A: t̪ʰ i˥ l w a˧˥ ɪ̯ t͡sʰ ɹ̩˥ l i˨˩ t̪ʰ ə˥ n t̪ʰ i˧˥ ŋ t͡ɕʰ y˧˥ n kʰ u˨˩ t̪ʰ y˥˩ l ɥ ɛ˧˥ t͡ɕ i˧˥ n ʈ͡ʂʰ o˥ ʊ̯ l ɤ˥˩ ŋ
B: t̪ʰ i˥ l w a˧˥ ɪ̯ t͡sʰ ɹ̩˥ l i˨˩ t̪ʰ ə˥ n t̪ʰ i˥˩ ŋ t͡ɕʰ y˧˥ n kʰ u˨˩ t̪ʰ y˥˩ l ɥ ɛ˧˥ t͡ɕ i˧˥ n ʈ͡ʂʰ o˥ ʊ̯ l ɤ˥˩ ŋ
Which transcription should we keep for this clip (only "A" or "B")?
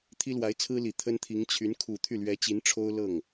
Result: A